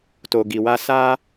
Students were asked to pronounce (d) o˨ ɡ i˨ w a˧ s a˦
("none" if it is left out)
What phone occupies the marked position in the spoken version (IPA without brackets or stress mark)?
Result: t